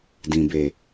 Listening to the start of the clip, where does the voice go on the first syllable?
low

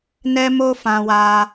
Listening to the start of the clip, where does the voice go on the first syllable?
high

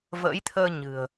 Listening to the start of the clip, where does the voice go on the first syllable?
rising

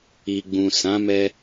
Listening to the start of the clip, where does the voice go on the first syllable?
low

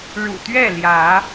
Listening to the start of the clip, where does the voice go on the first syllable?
low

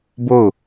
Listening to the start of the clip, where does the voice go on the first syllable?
falling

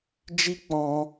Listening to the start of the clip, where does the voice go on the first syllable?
high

